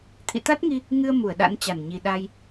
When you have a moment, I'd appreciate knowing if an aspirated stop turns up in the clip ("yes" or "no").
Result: yes